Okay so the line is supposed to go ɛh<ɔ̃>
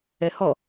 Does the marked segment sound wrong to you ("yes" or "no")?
yes